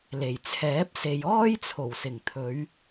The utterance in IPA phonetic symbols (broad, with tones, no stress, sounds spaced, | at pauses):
l e˨˩ j t͡sʰ ɛː˨˥ p̚ s e˨ j ɔː˥ j t͡sʰ o˨˩ w s ɪ˨˩ ŋ t̪ʰ ɵ˨˧ ɥ